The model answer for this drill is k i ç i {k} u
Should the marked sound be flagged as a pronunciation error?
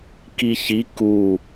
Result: no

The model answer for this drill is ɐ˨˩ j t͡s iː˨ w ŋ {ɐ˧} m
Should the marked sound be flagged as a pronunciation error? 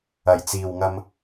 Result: no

